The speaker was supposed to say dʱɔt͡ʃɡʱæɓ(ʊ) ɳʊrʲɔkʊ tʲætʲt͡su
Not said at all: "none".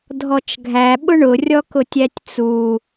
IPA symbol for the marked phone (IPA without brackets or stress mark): ʊ